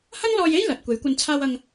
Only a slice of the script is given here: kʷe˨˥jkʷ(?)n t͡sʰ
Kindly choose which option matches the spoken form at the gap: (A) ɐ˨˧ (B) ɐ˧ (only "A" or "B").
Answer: B